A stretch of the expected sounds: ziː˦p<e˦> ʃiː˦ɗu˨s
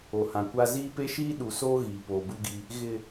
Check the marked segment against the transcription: correct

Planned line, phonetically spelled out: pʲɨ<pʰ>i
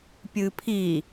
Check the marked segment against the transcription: correct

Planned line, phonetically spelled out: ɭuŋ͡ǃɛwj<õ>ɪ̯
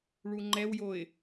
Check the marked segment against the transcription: incorrect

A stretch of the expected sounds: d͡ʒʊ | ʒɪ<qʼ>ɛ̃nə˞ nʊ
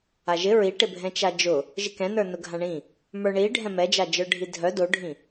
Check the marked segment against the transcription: incorrect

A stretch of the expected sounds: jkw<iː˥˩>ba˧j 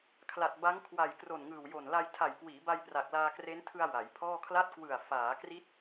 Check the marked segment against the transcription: incorrect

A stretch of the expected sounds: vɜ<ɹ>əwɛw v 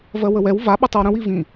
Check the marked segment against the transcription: incorrect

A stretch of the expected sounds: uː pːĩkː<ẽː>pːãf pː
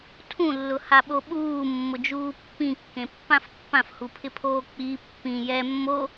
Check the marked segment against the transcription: incorrect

